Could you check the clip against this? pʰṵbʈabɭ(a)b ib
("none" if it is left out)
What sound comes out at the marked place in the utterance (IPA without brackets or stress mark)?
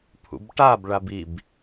a